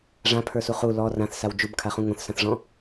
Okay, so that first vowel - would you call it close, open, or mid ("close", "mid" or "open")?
open